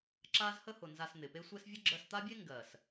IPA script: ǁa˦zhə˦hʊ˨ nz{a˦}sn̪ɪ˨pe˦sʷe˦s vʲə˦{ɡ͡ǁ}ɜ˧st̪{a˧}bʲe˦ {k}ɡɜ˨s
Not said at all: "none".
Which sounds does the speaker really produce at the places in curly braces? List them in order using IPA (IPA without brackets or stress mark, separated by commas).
a˧, ɡ͡ǁ, a˦, ŋ